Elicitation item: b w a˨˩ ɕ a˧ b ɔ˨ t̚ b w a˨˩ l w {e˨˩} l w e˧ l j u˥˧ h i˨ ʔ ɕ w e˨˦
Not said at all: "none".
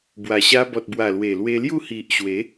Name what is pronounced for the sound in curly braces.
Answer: e˨˩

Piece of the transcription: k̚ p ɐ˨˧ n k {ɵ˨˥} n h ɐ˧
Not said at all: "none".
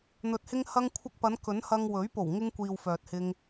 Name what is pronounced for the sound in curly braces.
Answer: ɵ˨˥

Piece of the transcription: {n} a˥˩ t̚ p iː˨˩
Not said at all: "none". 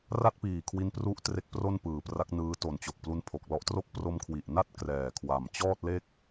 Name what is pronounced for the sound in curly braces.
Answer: r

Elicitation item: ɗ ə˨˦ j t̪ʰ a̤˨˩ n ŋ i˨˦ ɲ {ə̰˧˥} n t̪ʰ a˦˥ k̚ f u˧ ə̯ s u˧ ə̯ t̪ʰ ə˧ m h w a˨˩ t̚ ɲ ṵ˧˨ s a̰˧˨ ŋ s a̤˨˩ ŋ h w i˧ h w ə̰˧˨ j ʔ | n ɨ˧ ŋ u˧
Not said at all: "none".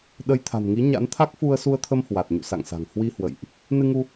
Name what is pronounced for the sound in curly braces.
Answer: a̰˧˥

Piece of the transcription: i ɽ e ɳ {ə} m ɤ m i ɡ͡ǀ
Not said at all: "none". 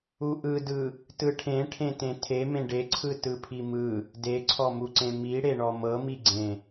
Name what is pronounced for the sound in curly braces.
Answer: ɔ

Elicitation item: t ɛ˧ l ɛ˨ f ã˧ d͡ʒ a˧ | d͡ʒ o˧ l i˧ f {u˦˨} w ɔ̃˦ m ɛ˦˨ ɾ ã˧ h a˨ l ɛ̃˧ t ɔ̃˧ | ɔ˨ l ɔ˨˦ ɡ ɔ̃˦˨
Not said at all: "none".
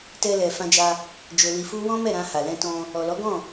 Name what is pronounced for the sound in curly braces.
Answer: u˦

